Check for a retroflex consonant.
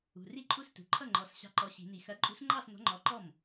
absent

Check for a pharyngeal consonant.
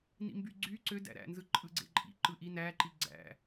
absent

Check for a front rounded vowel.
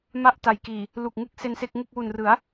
absent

